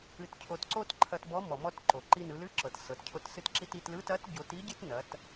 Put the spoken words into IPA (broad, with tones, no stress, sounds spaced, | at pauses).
ɨ˧ t cʰ o˧ t ǀ o˥ t ǃʰ ɐ˧ t b ɔ˧˥ m ɔ˩ m ɔ˧ t ǃ o˩ ǃ i˧ n ɯ˩˧ l ɨ˧˥ ǁ ɤ˩ t s ɤ˩˧ t cʰ o˧ t s ɨ˧ t ǁ i˧ t i˩˧ t l ɯ˧˥ t ɐ˧˥ t ɟ o˩˧ t i˧˥ ɟ ɨ˥ t n ɐ˩˧ t